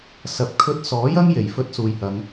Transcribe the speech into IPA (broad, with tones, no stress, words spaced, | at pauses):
sɐ˨p̚ kʰɵ˧t̚sɔː˨˥jɐ˥ŋ je˨˩jfɵ˥t̚ suː˨jhɐ˨˧ŋ